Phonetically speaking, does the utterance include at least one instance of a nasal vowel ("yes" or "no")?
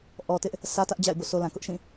yes